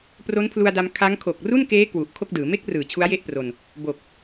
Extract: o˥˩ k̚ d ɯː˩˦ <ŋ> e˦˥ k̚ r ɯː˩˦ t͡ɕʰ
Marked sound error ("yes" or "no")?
yes